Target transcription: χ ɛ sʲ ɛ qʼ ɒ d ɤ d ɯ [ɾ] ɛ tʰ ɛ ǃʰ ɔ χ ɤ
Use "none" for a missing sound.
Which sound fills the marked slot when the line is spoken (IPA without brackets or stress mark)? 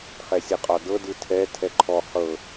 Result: tʰ